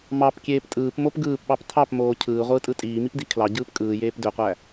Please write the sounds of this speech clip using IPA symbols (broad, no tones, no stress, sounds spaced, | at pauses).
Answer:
m ɑ p kʲ eː p tʼ ɯː p m o p ɡ ɯː p ɓ ɑ p tʰ ɑ p m oː cʰ ɯː ʁʷ ɯː tʼ ɯ tʼ iː m i p d i kʰ l ɑ ɟ ɯː p kʼ ɯː j eː p d ø qʷ æ